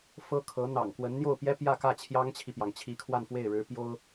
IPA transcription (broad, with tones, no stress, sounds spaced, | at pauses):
f ɤ˥ kʰ ɤ˧˥ n̪ ɑ̰˨˩ ŋ k w ə˧˥ n n̪ j o˥˩ ʊ̯ p j ɛ˥ p j ä˥˧ k ä˥˩ t͡ɕʰ j ɑ˥ ŋ t͡ɕʰ i˨ p j ɑ˩ ŋ t͡ɕʰ i˧˥ kʰ w a˥˧ n f w e˥˩ ɪ̯ ɻ ɻ̩˧˥ p j o˥ ʊ̯